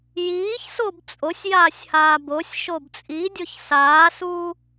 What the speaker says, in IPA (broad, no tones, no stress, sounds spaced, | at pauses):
j iː ç s o b t͡sʼ o sʲ j aː sʲ h aː b o sʲ ʃ o b t͡sʼ i dʲ o ç s aː s uː